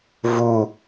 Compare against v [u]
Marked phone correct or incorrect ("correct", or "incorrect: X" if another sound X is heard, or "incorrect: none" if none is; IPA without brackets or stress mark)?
correct